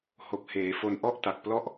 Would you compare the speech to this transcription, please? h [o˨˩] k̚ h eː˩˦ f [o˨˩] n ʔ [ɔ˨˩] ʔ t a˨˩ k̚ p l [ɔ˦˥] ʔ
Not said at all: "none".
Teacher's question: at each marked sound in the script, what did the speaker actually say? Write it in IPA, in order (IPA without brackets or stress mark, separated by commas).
o˨˩, o˧, ɔ˥˩, ɔ˥˩